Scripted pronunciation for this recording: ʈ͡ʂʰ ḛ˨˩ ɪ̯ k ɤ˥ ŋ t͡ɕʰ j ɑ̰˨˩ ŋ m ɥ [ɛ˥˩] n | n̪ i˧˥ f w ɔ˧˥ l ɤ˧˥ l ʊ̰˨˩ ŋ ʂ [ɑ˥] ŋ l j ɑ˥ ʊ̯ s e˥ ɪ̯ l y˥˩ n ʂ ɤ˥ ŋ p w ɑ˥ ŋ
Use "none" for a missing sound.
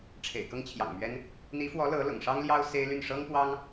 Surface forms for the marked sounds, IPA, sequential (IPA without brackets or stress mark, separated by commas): ɛ˥, ɑ˥